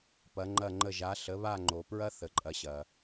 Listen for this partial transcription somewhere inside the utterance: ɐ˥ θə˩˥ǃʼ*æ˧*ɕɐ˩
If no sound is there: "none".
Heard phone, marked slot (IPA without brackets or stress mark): ɐ˧